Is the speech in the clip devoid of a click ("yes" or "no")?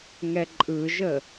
no